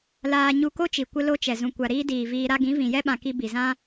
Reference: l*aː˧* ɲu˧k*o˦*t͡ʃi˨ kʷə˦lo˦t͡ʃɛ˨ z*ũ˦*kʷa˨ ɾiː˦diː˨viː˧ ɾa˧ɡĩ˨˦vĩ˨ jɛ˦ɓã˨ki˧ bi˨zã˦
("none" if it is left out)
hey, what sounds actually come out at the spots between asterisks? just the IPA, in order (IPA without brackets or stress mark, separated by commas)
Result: aː˧, o˦, ũ˨